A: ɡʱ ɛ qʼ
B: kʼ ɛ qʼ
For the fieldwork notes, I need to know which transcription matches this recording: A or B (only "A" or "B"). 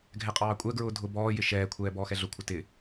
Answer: A